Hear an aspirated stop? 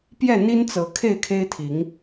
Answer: yes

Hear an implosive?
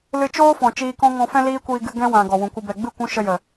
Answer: no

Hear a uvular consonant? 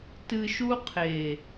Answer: yes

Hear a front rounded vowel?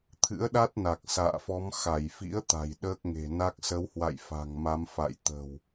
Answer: no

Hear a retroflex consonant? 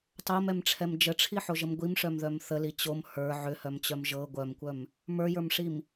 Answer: yes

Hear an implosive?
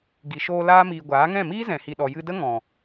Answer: yes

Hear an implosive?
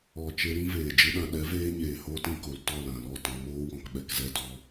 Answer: yes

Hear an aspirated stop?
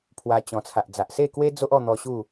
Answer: yes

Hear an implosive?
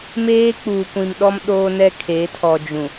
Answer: yes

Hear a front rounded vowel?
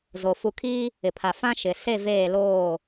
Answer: no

